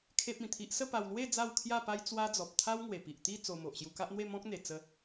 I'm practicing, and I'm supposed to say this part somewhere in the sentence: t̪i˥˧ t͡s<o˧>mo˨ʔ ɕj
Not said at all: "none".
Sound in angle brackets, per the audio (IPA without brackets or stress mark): o˧